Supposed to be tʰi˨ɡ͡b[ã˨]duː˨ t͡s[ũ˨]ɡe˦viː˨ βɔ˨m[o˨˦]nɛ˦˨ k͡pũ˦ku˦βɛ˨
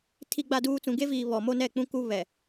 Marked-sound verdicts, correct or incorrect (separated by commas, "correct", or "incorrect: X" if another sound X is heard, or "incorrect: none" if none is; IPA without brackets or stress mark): incorrect: a˨, correct, incorrect: o˦